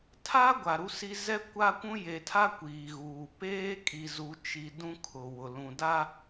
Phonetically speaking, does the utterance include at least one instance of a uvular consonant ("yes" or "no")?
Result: no